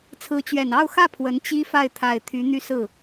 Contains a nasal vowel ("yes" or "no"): no